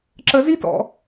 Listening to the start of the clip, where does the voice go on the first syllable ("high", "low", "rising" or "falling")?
low